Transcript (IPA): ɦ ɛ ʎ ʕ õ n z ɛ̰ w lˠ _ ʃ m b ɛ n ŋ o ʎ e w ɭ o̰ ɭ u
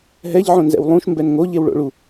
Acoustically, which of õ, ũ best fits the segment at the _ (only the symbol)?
ũ